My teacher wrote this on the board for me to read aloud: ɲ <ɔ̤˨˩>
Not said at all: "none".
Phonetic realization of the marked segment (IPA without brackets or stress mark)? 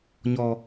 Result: ɔ˧